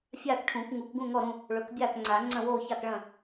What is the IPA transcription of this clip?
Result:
fʲ aː˥˨ k ʈʰ ũː˨˩˦ k ŋ u˨˩˦ k ɡ ũ˥˨ ŋ ɔ˥˨ ɾ ũ˥˨ | ɭ ɵ˨˩˦ k bʲ aː˥˨ k ŋ͡ǀ aː˨˩˦ ŋ͡ǀ ɐ̃˥˨ w oː˥˨ ç a˥˨ k ɭ ɐ̃˥˨

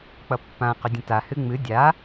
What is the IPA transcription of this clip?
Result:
k͡p ʌ pː ã q ʏ dʲ ə̃ t a h ɨ ŋ͡m ɨ dʲ a

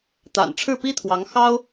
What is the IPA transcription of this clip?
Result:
t̪ a̰˨˩ n ʈ͡ʂʰ ɻ̩˥˩ p i˥ t̪ʰ w ɑ˧˥ ŋ x ɑ˥ ʊ̯

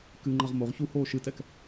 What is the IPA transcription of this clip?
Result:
k ɨ ŋ͡ǃ ɐ ʁ m o ʁ ç u h oː ʃ ɨ t ɛ k

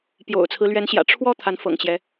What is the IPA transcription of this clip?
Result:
p j o̰˨˩ ʊ̯ t͡sʰ ɹ̩˦ l ɥ ɛ˧˥ n ɕ j ä̰˨˩ ʈ͡ʂʰ w ɔ˥˩ t̪ʰ a˧˥ n f ɤ̰˨˩ ŋ t͡ɕ j ɛ˦

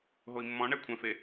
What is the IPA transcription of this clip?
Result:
ɦ o i̯ mː ɔ̃ ɳ ɛ kʷʰ ɛ̃ f e

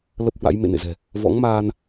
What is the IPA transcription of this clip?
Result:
l ə˦˥ p̚ h w a̰˧˥ j m ḛ˧˨ n ḛ˧˨ z ɛ̤˨˩ | v ɔ̰˧˥ ŋ m aː˧ n

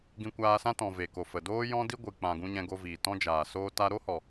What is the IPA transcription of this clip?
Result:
ɡ ĩ˧ kʷ aː˧ s ã˦ t ɔ̃˨ v e˨ k o˨ f ə˨ d oː˦ j ɔ̃˦ d i˦ ɡʷ ɨ˨ k͡p ã˨ ɡ ũ˧ ɲ ɛ̃˧ ɡ o˧ v iː˨ t ɔ̃˦ d͡ʒ aː˨ s oː˧ t a˧ ɾ o˦ h ɔ˨

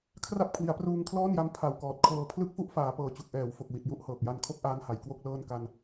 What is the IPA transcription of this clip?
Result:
kʰ r a˥˩ p̚ kʰ w i˩˦ a̯ p r uː˧ ŋ kʰ l ɔː˥˩ n j a˦˥ m pʰ a˨˩ w k ɔː˨˩ t̚ kʰ ɤː˧ pʰ l ɯ˥˩ k̚ f u˥˩ ʔ f aː˩˦ p ɤː˨˩ t͡ɕ u˨˩ k̚ ʔ ɛː˩˦ w f o˨˩ k̚ w i˨˩ t̚ j u˥˩ ʔ h ɤː˨˩ k̚ j a˧ n kʰ o˥˩ k̚ ʔ aː˦˥ n h a˩˦ j k w o˥˩ k̚ l ɤː˥˩ n k a˧ n

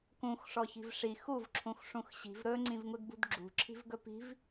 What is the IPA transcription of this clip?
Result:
k ũ x ʂ ɔ ç i̤ v ʂ i x u v ǁʰ ũ x ʂ ũ x ɕ i̤ v ɾ ɵ ŋ͡ǀ ĩ v ŋ u d b ṳ d ɡ͡ǁ ṳ ǁʰ i̤ v ɡ ɵ p i̤ v

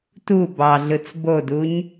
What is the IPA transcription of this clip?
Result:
t u b ɑ ɮ ɯ t͡s b o d u ɲ

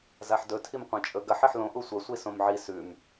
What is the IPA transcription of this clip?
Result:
z a ħ d ɵ tʰ i m qʷ ẽ t͡ʃʼ ɵ ɡ ɐ ħ e ħ l õ ʔ u sʷ ɐ sʷ i s õ m ʕ i s ʉ m

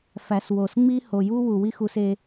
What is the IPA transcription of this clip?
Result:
f æ˨ s w o˨ s ŋ͡m i˦ h o˨ j u˦ w u˨ w i˦ x u˧ s e˧

